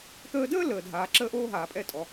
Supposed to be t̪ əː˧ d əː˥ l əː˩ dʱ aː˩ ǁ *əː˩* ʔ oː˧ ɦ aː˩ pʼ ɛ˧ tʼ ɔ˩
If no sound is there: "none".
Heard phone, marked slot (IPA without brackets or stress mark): əː˧